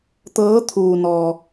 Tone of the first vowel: rising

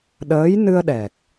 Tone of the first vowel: rising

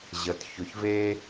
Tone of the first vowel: low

